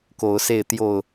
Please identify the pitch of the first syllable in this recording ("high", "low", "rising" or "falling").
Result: rising